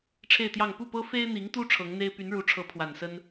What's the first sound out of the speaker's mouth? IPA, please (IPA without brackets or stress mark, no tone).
ʈ͡ʂʰ